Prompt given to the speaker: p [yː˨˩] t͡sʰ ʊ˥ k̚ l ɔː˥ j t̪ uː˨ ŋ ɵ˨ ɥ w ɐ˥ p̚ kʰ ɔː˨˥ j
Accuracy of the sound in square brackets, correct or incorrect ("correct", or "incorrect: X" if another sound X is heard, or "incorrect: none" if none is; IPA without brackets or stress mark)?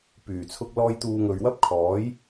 correct